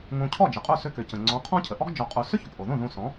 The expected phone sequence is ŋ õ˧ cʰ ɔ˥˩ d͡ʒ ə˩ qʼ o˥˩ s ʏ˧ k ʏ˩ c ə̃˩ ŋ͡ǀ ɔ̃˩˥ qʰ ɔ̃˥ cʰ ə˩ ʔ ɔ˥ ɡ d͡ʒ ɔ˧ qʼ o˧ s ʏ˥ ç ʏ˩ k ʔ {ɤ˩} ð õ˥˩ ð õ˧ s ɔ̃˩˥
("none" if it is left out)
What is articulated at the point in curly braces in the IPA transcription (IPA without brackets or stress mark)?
o˩